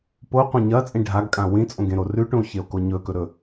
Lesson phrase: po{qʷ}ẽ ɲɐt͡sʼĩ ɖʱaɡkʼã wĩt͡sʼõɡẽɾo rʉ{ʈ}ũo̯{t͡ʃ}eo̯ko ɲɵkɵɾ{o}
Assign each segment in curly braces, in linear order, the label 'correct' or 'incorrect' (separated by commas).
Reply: correct, correct, incorrect, incorrect